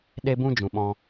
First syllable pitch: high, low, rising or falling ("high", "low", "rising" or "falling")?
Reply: high